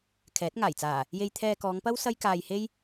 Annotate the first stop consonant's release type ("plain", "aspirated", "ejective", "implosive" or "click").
aspirated